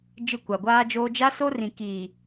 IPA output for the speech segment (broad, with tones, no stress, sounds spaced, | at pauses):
d͡ʒ ɪ˦˨ kʷ a˨ ɡʷ aː˦ d͡ʒ oː˦ d͡ʒ a˦ s o˦ r ĩ˨ k iː˨